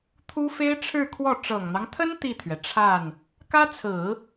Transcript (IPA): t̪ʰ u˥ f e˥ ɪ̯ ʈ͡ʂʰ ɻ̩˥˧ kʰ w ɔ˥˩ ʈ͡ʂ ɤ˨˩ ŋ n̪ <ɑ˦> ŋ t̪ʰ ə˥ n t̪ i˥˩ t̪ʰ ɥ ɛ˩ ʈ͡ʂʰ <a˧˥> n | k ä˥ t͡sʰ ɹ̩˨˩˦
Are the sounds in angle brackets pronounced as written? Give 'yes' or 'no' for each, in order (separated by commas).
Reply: yes, no